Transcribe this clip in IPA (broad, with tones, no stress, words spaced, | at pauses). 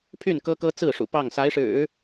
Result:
pʰy˥˩n kɤ˥kɤ˥ t͡sɹ̩˥˩ʂṵ˨˩ pɑ˥˩ŋ sa˧˥ɪ̯ʂɻ̩˨˩˦